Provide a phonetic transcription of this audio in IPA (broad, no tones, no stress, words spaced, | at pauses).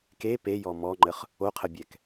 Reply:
ke pejɔ mɔŋ͡ǃəχ | oqʰəbʲɛk